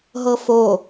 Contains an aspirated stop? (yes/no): no